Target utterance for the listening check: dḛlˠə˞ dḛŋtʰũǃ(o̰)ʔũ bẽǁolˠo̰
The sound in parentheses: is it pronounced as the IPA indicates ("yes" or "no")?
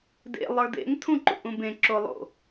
no